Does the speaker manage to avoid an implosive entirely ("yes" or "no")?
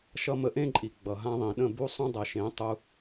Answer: no